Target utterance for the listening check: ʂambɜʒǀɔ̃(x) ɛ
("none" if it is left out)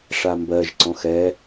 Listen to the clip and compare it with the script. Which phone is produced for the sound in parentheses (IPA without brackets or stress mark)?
x